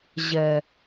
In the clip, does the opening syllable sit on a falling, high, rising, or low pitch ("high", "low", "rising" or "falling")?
low